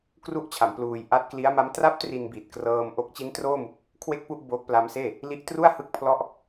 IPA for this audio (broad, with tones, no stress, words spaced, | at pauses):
kru˥˩ʔt͡ɕʰa˩˦m pluː˧j ʔa˦˥t̚kli˦˥a̯ma˦˥m tra˦˥p̚ tri˧nbi˨˩t̚krɤː˧m ʔo˦˥k̚t͡ɕi˦˥n troː˥˩mu˨˩k̚ | kʰwe˥˩k̚pu˥˩ʔ boː˦˥k̚pla˦˥mseː˥˩ | li˦˥ʔtru˥˩a̯hɯ˥˩k̚ pʰlɔ˦˥ʔ